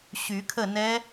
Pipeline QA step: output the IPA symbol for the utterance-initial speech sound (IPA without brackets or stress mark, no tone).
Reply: ɕ